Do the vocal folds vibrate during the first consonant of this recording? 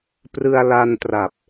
no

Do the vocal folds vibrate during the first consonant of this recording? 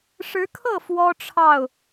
no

